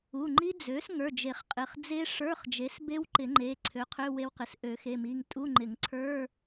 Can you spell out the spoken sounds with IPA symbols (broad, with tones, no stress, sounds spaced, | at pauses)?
u˩˧˩ ŋ͡ǃ i˦˥ d͡z ø˩˥ s ŋ ə˞˩˧˩ d͡ʒ e˨˩˦ χ qʼ ɪ˩˧˩ χ d͡z e˦˥ ʂ ə˞˧˥˧ χ d͡ʒ e˩˥ s b e˦˥ w ǃ ɪ˨˩˦ ŋ͡ǃ e˩˧˩ ǀʰ ø˩˥ qʰ ø˧˥˧ w e˧ w q ɪ˩˧˩ s ʔ ø˨˩˦ x e˩˧˩ m i˩˧˩ ŋ tʼ u˧˥˧ ŋ͡ǃ ɪ˨˩˦ ŋ ǀʰ ə˞˧˥˧